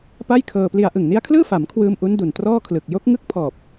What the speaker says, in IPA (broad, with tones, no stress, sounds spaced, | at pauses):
p a˥˩ j kʰ ɤː˧ p l i˧ a̯ ʔ ɯ˨˩ ŋ n i˦˥ a̯ kʰ l ɯː˥˩ f a˩˦ m kʰ w ɯː˧ m ʔ u˦˥ n d u˨˩ n t r ɔː˥˩ kʰ l ɯ˨˩ k̚ j o˦˥ k̚ ŋ ɯ˥˩ k̚ pʰ ɔː˨˩ p̚